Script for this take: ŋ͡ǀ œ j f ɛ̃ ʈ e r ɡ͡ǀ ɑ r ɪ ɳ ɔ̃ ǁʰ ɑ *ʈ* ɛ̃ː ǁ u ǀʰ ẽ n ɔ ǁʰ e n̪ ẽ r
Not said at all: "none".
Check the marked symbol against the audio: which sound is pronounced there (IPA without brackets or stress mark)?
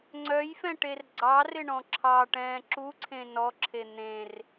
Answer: ʈ